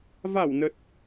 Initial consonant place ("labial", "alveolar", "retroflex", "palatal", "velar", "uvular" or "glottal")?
labial